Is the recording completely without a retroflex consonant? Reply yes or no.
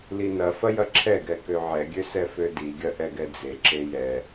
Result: yes